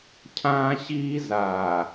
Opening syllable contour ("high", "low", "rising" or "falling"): high